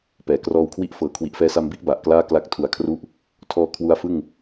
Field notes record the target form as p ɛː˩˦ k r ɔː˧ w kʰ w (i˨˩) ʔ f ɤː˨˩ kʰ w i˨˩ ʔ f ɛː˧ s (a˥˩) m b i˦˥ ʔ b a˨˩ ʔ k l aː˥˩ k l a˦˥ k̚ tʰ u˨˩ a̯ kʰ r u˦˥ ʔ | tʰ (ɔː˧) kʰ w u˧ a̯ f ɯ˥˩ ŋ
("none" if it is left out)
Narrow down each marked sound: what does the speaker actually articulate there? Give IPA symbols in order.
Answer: i˥˩, a˧, ɔː˧

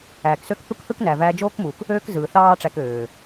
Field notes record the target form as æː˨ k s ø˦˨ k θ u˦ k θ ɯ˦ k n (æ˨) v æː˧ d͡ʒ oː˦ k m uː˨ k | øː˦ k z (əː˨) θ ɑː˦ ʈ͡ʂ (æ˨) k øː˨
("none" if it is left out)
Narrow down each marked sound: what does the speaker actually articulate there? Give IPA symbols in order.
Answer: æ˨, ɯː˨, æ˧

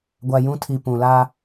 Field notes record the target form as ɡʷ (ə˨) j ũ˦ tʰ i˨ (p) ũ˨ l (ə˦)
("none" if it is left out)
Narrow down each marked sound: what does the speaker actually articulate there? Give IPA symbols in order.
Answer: a˨, p, a˦

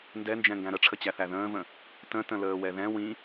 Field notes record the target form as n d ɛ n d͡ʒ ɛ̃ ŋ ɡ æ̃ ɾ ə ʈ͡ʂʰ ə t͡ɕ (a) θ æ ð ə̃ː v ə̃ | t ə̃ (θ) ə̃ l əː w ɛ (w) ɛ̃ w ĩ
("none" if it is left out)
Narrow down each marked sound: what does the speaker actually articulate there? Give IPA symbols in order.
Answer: æ, t, ð

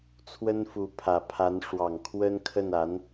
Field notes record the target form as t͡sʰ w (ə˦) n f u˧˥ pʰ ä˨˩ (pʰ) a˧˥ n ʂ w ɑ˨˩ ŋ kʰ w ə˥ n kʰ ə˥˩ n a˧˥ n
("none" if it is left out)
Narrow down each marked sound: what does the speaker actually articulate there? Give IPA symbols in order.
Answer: ə˥, pʰ

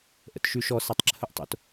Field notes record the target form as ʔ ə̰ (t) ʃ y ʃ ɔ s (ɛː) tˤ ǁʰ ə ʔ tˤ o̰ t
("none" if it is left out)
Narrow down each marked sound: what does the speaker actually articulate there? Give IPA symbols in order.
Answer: t, ɛ

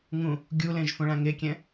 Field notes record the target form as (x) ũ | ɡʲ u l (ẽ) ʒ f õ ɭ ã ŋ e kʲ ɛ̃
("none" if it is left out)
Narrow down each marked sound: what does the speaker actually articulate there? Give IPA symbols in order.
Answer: ŋ, ẽ

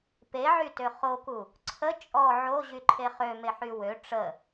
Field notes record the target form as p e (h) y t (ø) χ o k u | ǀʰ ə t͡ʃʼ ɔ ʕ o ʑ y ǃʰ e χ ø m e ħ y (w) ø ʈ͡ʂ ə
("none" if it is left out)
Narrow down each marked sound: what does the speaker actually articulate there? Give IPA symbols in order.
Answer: ʕ, ø, w

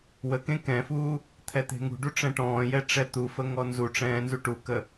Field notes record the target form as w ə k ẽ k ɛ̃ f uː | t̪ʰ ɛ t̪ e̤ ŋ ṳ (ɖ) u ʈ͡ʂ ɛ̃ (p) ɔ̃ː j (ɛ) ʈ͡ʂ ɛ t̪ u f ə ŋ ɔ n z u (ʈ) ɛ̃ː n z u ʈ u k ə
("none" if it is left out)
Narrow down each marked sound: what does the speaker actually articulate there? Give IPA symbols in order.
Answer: ɖ, ʈ, ɛ, ʈ͡ʂ

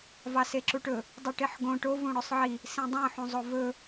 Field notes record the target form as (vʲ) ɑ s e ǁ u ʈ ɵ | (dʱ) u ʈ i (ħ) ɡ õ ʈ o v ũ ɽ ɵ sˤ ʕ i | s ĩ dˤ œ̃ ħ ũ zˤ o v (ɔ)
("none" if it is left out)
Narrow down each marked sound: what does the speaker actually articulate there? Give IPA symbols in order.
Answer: v, dˤ, ħ, ɵ

